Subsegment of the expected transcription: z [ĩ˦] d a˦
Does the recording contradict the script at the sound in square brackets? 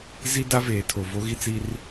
yes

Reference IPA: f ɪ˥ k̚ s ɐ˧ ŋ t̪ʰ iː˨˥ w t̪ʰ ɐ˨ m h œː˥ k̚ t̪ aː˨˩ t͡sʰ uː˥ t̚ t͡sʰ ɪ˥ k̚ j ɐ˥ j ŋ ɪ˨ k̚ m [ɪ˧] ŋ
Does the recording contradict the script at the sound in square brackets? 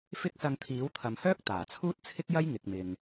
yes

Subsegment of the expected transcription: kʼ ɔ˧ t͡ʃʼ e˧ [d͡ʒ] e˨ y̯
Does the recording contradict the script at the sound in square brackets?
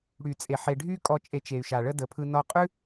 yes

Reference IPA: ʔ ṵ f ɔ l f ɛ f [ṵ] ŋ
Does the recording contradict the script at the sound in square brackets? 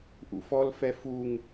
yes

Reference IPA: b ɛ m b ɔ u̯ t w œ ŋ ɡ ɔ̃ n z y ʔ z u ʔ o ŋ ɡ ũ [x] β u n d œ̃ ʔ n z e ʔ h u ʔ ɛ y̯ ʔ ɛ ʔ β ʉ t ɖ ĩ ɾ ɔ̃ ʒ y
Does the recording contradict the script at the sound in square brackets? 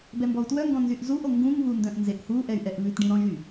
yes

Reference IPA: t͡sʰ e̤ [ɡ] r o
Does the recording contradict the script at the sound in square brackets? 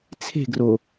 no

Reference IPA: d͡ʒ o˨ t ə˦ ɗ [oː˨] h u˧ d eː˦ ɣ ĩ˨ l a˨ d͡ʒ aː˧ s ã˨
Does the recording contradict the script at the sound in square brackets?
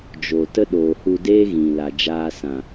no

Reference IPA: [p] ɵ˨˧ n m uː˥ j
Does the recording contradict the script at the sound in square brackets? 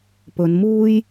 no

